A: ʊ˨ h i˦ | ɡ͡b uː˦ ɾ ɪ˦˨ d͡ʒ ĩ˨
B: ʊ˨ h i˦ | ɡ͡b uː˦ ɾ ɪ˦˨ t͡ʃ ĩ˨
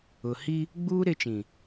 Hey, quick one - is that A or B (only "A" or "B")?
B